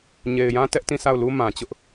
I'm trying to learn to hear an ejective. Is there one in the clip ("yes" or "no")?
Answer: no